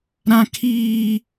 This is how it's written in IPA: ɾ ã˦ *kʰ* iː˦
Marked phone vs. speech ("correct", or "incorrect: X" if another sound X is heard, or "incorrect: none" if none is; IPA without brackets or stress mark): correct